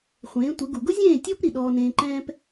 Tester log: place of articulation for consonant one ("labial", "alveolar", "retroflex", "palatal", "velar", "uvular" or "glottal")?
uvular